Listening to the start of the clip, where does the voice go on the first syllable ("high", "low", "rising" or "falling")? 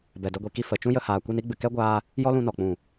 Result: low